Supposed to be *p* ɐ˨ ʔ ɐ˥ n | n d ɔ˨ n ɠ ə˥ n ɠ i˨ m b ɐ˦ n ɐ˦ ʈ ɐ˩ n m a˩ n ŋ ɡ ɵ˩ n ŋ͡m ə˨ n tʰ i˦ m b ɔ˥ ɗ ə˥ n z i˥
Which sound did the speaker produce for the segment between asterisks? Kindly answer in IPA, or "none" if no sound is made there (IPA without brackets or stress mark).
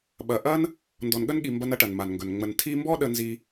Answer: ɓ